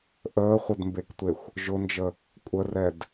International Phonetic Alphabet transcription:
ʔəːχʷədmbektʷexʷ | ʒʊnd͡ʒə | kʷʼərɛd

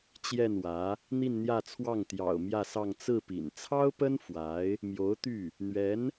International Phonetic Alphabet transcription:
t͡ɕjɛ˥˩nwä˧˥ | n̪i˥˧nn̪jä˥˧t͡sʰwɑ˥˩ŋ t̪jɑ̰˨˩ʊ̯ mjä˥˧sɑ˥˧ŋ t͡sɹ̩˥˩pḭ˨˩n t͡sʰɑ˥ʊ̯pə˥n fwa˧˥ɪ̯ | mjo˧˥ʊ̯ t̪y˥˩ | n̪ɥɛ˧˥n

